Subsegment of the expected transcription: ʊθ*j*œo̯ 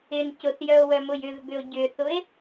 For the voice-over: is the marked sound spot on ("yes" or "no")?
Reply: yes